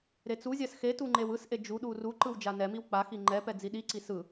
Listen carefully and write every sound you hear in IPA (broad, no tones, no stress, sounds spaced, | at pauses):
ɾ e t͡s u zʲ a s x e t u ŋ͡ǃ e w ɯ s ʔ e d͡ʒ u ɗ u r u ǃ ɯ w d͡ʒ a n ɛ m i w k͡p a x i ŋ͡ǃ ɛ p ɛ d͡z i ɗ i ǀ i s ɯ